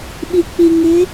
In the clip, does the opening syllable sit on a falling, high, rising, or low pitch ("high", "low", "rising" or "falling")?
low